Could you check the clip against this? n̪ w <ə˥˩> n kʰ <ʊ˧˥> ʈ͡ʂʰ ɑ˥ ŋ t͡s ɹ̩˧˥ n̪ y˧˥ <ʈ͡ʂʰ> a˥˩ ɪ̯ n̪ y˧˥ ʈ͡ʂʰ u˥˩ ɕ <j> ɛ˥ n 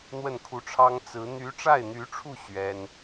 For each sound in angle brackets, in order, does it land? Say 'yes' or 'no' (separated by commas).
yes, no, no, no